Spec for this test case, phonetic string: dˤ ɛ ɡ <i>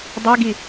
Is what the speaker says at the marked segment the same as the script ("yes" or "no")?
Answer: yes